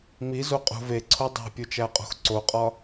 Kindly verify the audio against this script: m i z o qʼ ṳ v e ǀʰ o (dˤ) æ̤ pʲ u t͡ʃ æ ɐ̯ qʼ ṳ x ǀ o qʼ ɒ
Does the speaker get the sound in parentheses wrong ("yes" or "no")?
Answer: no